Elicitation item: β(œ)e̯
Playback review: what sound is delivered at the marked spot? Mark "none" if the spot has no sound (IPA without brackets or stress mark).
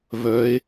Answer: œ